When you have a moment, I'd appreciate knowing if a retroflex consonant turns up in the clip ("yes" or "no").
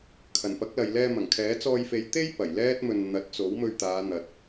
no